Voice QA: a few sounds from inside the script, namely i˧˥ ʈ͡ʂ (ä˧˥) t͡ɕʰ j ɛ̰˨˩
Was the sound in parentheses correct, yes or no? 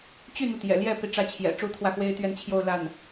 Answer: no